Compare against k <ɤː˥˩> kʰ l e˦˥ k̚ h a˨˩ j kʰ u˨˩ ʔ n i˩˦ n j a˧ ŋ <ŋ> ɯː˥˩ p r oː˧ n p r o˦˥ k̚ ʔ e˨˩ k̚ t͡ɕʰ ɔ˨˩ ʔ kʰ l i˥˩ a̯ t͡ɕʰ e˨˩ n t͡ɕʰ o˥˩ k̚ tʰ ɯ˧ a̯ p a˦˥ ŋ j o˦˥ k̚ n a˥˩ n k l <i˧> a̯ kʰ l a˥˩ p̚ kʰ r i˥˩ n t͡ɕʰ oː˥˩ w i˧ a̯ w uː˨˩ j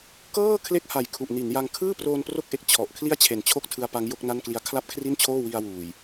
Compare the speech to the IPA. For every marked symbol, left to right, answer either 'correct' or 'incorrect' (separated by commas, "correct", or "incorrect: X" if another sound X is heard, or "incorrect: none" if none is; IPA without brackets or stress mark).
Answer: correct, incorrect: kʰ, incorrect: i˦˥